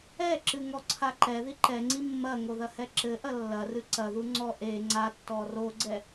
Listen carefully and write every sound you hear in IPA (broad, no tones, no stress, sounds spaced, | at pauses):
ɛ ǁ ɨ ŋ ɔ ǀʰ a ǃ ɛ ð i ǃ ɛ ŋ͡ǀ i mː ɐ ŋ o ð ɐ h ɛ ǁ ɘ ʔ ɐ lː ɐ r ɨ ǀ ɐ ð u ŋ͡ǀ ɔ ʔ e ŋ͡ǀ a tː ɔ r o ɡ͡ǀ ɛ